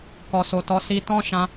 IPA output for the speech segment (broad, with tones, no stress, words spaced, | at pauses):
kɔ˨so˨tɔ˨˦ si˧tɔ̃˦ʃã˧